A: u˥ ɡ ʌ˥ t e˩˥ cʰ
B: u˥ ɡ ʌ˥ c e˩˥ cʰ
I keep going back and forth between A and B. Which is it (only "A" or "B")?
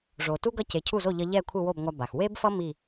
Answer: B